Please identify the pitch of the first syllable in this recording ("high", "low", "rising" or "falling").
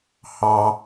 high